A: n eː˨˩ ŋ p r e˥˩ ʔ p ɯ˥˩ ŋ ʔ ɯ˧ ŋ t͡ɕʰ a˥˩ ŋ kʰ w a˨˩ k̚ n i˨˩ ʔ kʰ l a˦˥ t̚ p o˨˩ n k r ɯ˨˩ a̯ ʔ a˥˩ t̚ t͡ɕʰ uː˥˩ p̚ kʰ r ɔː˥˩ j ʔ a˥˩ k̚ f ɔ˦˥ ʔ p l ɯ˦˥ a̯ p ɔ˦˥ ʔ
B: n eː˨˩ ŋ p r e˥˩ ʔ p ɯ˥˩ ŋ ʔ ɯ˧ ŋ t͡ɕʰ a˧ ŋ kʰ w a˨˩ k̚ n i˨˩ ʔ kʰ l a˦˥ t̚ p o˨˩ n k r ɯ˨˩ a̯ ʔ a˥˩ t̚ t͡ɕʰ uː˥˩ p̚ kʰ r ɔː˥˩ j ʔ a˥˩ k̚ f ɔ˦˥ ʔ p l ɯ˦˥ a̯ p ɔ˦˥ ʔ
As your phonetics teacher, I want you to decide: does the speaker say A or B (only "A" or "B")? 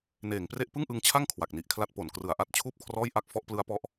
A